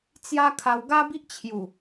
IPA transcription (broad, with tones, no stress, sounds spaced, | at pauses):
t͡s j a˦ kʰ a˧ w ɡ a˦ b i˦ ʔ t͡ɕʰ j u˨˩